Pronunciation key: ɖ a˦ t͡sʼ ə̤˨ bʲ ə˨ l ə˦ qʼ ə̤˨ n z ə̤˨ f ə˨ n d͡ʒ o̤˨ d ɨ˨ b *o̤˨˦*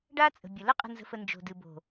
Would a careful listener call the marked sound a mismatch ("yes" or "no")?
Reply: yes